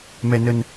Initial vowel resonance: oral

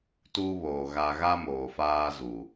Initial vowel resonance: oral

